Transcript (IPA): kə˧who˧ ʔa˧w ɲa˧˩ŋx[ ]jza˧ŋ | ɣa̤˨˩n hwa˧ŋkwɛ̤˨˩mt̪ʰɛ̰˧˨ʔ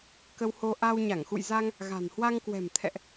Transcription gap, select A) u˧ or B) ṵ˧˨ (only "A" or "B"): B